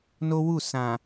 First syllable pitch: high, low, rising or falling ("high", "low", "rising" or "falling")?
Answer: high